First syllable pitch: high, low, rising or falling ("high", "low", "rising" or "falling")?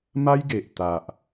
high